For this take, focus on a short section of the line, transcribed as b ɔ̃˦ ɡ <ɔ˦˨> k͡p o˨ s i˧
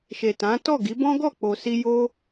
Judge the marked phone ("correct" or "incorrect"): correct